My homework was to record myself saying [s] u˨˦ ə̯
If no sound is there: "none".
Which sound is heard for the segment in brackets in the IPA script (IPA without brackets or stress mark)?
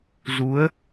z